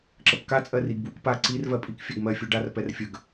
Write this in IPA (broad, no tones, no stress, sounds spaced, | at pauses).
ǁ ə p k a t͡sʼ ɜ r i ɡ b w u k p a ǀ i r v ɜ pʼ i k fʲ ɜ ɡ m ɜ fʲ u ɖ a r p ɛ r fʲ ə ɡ